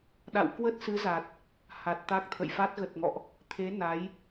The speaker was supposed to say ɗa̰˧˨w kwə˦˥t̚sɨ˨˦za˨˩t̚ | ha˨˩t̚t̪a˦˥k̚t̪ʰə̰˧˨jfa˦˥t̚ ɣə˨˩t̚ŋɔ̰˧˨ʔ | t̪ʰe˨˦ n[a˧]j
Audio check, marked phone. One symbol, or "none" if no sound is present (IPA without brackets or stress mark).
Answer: a˨˦